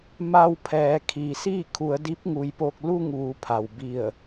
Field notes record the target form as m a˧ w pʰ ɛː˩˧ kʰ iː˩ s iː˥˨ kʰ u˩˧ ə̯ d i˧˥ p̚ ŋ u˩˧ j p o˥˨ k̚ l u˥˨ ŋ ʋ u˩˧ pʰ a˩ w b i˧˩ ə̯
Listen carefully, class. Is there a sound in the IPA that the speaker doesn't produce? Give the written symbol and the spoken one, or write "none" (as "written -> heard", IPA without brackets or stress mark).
o˥˨ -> o˧